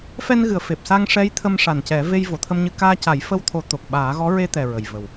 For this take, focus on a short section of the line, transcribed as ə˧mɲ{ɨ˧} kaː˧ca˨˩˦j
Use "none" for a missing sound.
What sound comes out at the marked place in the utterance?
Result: ɨ˧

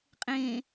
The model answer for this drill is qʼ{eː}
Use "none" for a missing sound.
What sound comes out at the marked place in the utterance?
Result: ẽː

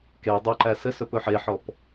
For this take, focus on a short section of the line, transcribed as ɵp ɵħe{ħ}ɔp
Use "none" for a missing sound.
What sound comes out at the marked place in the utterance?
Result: ħ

